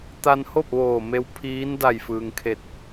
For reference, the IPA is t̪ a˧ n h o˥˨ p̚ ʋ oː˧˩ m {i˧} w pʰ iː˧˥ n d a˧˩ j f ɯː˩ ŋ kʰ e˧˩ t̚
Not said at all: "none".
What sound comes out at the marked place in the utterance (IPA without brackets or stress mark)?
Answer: e˧